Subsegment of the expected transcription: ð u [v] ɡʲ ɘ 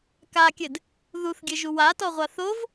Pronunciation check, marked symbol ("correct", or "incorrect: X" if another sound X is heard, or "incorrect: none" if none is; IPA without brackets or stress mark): incorrect: θ